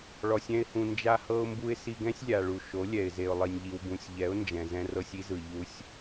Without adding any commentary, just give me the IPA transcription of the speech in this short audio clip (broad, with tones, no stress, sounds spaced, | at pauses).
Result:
ɭ ɔ˧ sʲ ɛ̃˦ ɪ̯ h ũ˧ n d͡ʒ a˦ h ɤ˦ ʊ̯ m b u˦ ɪ̯ s i˧ ɡ ɛ̃˦ sʲ lʲ a˨ ɭ u˨ ʃ o˨˦ lʲ ɛ˨ ɪ̯ z e˨ ʊ̯ lˠ i˨ nʲ ʎ i˨ w b ũ˨ sʲ ʎ ɛ˨˦ ʊ̯ n d͡ʒ ɛ̃˨ z ɛ̃˧ r ɤ˧ sʲ i˦ z ɯ˨ ʎ u˧ sʲ